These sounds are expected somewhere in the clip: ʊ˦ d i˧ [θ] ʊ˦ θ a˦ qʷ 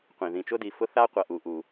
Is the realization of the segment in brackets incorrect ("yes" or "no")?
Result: yes